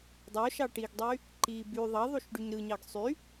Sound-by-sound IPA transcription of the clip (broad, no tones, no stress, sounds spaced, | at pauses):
dˤ o ʃ ɑ ʈ i ɡ dˤ y | ǃ i b y ðˤ ɑ ðˤ u ʃ ɖ y ɲ ɾ ɯ ɲ ɑ ɡ sˤ y